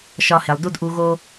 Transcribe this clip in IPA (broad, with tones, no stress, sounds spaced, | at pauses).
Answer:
ʃ ɒ˧ h e˨ lˠ d u˦ d ʔ u˧ ɣ o˦